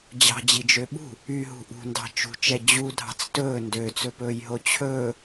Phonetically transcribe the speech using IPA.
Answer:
d͡ʑɑ̤d͡ʑid͡ʒø ɓṳ | yɦṳ ʔṳndɑ̤ t͡ʃṳt͡ʃɛ d͡ʑudʱɑ̤t͡s tɵː ndøt͡sɵpɵːjɦo t͡ɕʰɵː

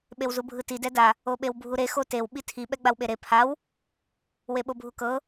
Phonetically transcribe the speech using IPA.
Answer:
ɓewzubʱɯti dɛda | oɓewbʱuɾe xotew ɓitʰi ɓɛɡ͡bawɓeɾe pʰaw | weɓobʱukɤ

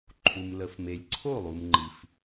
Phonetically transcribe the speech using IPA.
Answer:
ǃʰu˩mlə˩fme˩lʲ ǀʰo˥˩lˠu˩mŋ͡ǃi˩f

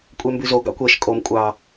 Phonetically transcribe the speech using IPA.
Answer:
kʷʼɛmbʉzo ɡɑ̰kʷɛʃ kʼom kʷʼɑ

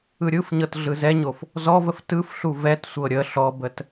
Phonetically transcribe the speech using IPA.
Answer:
ɯɾʲɯfɲɤt ɮɯzɛɲof | zɔvəf tɯfɬu vɛtsʷɤ ɾʲə ɬɔbət

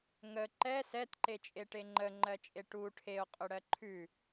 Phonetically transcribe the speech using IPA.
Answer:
ŋə ǃɛ sɛtǃet͡ʃʼeʈe ŋ͡ǃəŋ͡ǃɜt͡ʃʼe ʈu ʈʰeo̯qʼɵɽɜ ǃʰʉ

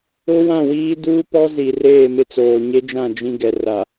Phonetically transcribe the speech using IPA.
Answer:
ʊ˦wã˦˨wiː˦ duː˦pɔ˦ zi˨reː˦˨ mɪ˦t͡soː˨ɲe˦d͡ʒã˦˨ d͡ʒĩ˦ɡɛ˨ ra˨

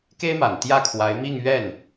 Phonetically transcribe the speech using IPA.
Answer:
ke˥ɪ̯ma˨˩n t̪jä˥˩kʰwa˧˥ɪ̯ mi˥˧ŋɥɛ˥˩n

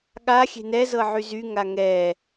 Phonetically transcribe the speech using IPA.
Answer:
ɠa xʲe̤nɛzɤ ʕyzy ŋaŋɛ

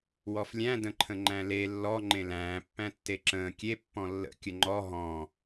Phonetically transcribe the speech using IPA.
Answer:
wɔflʲæ̃ də̃ǃʰə̃ŋ͡ǃæ̃le lːɔ ŋ͡ǃẽlæ̃ː pːæ̃tːeǁə̃ː kʲe pːɔ̃lːə̰ kʲəŋ͡ǃɔ ɦɔ̃

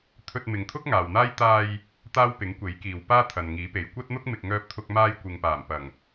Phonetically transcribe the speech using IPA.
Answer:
t̪ʰɵ˧t̚mɪ˨ŋt̪ʰʊ˥k̚ ŋaː˨wn̪aː˥j t̪aː˧j | t̪aː˥wpɪ˨˥ŋ kʷe˨˥jkiː˨wpaː˥ t̪ʰɐ˨nŋiː˨˥pe˨˧j kʷɐ˥t̚n̪ʊ˥k̚ mɪ˨k̚ŋœː˧p̚t̪ʰʊ˧k̚ maː˧jkʷɪ˨ŋpaː˨˩m pɐ˨˩ŋ

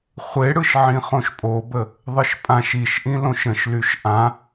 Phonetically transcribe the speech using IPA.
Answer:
χʷeɽɯʃ ʕĩχõʃpʼobə | ðˤɯʃpʼãʃ iʃʔĩ lõʃə̃ʃlyʃ ʔã

